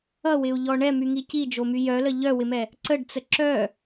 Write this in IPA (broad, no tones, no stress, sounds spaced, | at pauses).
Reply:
ʌ w ɪ u̯ ʎ ɔ ɳ ɛ m y ŋ i c i d͡ʒ o m y j œ l ə ʎ œ w ɪ m ɛ | ǀ ə ɖ t͡s ə ǁ œ